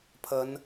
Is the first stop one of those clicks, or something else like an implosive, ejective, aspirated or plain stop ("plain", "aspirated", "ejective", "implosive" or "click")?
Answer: aspirated